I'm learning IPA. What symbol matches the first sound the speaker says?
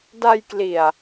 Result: d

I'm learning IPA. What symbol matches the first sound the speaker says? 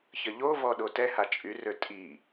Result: ç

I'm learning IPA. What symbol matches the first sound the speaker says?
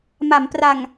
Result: m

